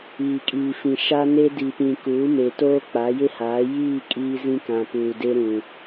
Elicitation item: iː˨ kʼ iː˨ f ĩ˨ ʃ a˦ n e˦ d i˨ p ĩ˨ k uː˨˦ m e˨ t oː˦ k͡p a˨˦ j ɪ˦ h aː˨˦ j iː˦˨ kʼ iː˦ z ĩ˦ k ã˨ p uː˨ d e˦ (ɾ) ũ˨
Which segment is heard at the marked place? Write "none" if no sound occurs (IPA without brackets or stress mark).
ɾ